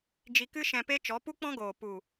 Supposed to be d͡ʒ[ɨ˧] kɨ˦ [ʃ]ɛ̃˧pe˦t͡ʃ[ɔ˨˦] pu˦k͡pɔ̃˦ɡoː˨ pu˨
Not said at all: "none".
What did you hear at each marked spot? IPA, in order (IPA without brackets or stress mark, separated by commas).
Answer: i˧, ʃ, ɔ˨˦